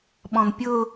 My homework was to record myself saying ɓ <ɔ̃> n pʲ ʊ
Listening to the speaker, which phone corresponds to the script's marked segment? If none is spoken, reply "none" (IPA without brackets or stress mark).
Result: ɔ̃